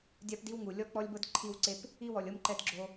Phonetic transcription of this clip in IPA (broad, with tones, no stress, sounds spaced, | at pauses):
dʲ a˦ p d i˦ w ŋ u˨ lʲ ɔ˦ k͡p ɔ˦ lʲ b ɤ˦ d ǃʰ i˦˨ w ǀ e˦ p | i˦ w ɔ˨ lʲ ɤ˦ m ǃ ɛ˦ d ɡ͡ǁ o˦